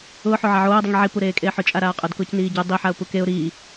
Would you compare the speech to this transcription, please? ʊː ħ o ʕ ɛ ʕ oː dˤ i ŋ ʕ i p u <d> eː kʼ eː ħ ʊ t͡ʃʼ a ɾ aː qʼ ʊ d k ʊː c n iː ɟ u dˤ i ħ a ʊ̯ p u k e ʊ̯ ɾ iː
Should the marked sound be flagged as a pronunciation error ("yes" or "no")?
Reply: yes